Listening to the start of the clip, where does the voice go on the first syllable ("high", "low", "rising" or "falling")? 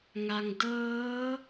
low